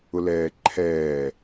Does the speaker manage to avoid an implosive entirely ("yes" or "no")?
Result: yes